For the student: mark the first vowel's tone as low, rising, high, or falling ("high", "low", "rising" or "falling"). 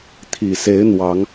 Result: low